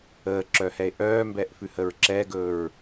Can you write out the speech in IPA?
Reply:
əːǁœhɛe̯ ʔœːmbɛʔfʉ həɹǁɛɡɵɹ

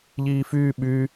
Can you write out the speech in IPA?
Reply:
ʎiːfyː ɓy

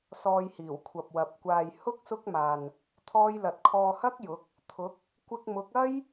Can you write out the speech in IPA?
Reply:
sɔː˧jhiː˨˩wkʷʰɐ˨p̚ wɐ˨˥p̚kʷaː˧j hʊ˥k̚ sʊ˥k̚maː˨n | t̪ʰɔː˥jlɐ˧t̚ kʰɔː˧hɐ˥k̚jʊ˨˥k̚ | t̪ʰʊ˨˥k̚ | kʷɪ˧k̚mʊ˨˥k̚ɐ˥j

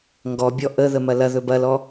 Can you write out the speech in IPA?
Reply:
ŋɡɔbʲɔ ʔəðəmɐ lɐðɵ bɐlɔ

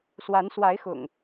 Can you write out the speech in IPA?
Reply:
swa˨˦n swa˨˦ɪ̯xʊ̰˨˩ŋ

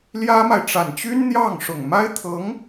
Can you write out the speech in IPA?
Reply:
ljä˥ma˨ɪ̯ ʈ͡ʂa˨˩nt͡ɕy˥nn̪jɑ˥˩ŋ ʂʊ˨˩ŋma˥ɪ̯t̪ʰɤ˧˥ŋ

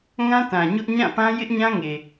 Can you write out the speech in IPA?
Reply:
ŋã˦tã˨ ɲʊ˦ʔ ɲã˦˨pã˦ jɪ˦ʔɲã˦ŋe˨

